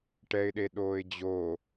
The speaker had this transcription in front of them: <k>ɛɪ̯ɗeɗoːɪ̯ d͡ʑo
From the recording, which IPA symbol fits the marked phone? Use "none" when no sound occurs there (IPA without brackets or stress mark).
ʈ